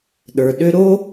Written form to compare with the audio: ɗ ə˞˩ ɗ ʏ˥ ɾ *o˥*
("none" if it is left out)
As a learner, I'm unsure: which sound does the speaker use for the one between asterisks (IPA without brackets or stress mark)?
o˥